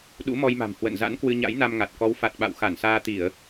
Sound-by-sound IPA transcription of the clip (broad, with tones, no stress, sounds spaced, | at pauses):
ɗ ṵ˧˥ m ɔ˧ j m a̤˨˩ m h w ə̰˧˨ n z a̰˧˥ n k w ɨ˧ ɲ a̰˧˥ j n a˧ m ŋ a˨˩ t̚ k ɔ˨˦ w f a˨˩ t̚ ɓ a̰˧˨ w x a˧˩ n s aː˧ t̪ i˧˩˨ ə̯